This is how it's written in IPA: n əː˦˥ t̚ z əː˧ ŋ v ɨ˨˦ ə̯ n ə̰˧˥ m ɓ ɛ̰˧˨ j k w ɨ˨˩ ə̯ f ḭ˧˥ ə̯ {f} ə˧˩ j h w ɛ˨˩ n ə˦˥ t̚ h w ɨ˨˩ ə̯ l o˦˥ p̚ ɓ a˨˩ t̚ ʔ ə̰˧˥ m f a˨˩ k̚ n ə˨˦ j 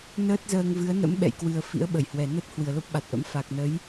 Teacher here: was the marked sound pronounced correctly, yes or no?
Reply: no